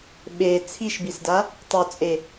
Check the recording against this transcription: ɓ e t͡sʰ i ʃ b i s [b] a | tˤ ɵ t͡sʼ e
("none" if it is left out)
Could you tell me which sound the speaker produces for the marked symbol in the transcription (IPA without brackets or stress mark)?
d